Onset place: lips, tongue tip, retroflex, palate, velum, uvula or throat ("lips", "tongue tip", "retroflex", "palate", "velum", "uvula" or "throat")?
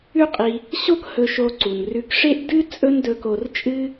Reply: uvula